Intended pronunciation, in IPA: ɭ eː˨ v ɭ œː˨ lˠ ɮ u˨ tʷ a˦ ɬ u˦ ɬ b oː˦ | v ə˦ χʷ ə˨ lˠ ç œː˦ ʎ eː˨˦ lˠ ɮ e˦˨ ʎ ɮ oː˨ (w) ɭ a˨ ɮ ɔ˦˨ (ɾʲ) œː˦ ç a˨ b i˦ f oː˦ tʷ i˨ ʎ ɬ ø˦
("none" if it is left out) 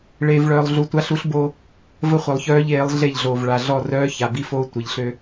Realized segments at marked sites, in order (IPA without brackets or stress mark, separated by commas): v, r